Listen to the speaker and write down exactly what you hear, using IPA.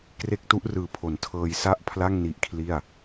k r e˦˥ k̚ t u˦˥ ʔ r ɯː˨˩ pʰ o˩˦ n tʰ ɤː˧ j s a˥˩ ʔ pʰ l a˥˩ ŋ n i˦˥ ʔ kʰ l i˥˩ a̯

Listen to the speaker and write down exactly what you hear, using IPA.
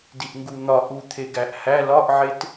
d i ʔ ŋ ɡ u n̪ ɒ ʔ u t̪ʰ e ɡ æ ʔ h æ l ɒ ʔ ʕ e t

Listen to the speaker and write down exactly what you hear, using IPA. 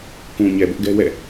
k ũ˨ ɲ ɛ˨ b ʊ˦ ʔ ɡ ɛ˦ w ɛ̰˦˨

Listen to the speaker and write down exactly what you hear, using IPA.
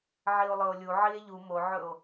ʕ i o̯ lˠ ɵ o̯ lʲ u ʕ i e̯ ʎ u m o ʕ ɵ o̯

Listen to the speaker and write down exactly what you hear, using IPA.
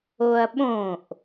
o ɐ̯ ɓ õ ʔ

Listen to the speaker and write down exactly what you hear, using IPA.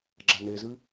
ɡ͡ǁ a n e z ɨ

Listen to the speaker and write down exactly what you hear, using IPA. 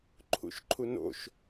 ǃʰ ṵ ʃ ǃʰ u n o̰ ʃ

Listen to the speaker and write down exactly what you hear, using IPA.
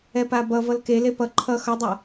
ɛ p a b ʌ v ʌ l k e l e p ʌ ǃʰ ʌ x ʌ dˤ a

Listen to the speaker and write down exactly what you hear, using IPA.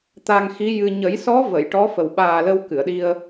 t̪ a˧ ŋ x i˧˥ j ɨ˧ ɲ ə˨˩˦ j s ɔ˧˥ v ə˨˩˨ j ʈ ɔ˧˥ f ə˨˩ w ɓ aː˨˩ l ə˧ w k ɨ˨˩˨ ə̯ ɗ i˧ ə̯

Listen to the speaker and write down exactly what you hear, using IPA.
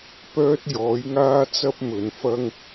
p œː˥ t̚ j ɔː˨˥ j ŋ aː˥ t͡s ɐ˥ p̚ m ɵ˨˧ n f ɐ˥ ŋ

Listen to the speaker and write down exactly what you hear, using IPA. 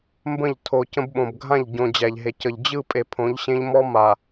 m b ə̃˦˨ ʎ tʰ o˨ c ə̃˦ b ɓ õ˨ b ɡʱ ã˦˨ ʎ ɟ õ˨ d͡ʑ æ˨ ʎ ɦ e˨ c ə˨ ʎ d͡ʑ ɯ˦˨ pʼ e˨ pʰ õ˨˦ ʎ ɕ ẽ˦ ʎ m ɔ˦ m a˨

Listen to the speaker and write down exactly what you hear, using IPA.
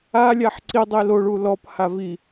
a lʲ a ħ ǀ i dˤ i l o ɭ u l ɔ p h a v i

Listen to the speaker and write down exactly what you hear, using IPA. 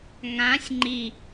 ŋ ã sʲ ŋ͡ǃ i

